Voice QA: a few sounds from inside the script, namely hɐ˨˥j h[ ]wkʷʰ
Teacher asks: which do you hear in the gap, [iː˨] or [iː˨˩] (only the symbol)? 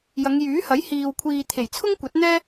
iː˨